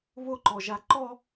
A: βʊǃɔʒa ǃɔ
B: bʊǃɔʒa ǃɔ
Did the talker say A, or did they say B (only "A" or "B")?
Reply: A